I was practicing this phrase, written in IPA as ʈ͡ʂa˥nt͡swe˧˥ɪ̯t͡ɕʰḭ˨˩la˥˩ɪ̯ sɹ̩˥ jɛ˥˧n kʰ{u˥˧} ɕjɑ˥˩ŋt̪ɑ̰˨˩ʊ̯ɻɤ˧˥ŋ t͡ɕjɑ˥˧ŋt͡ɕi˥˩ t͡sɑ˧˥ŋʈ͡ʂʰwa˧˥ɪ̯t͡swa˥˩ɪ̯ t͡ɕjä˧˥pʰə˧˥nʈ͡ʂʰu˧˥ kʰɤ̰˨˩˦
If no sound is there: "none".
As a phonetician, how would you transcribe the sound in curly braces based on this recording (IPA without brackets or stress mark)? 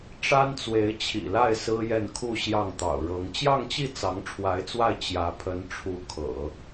u˥˧